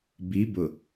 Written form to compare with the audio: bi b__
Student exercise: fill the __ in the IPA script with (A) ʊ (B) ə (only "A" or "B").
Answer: A